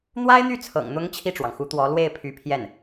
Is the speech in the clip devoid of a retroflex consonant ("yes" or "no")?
no